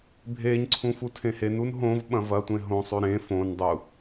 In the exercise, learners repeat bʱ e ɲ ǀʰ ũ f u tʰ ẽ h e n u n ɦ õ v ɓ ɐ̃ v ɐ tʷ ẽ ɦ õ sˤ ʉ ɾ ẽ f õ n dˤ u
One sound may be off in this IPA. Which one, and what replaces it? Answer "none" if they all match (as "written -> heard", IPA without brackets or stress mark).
none